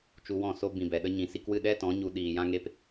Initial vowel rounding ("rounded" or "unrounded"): rounded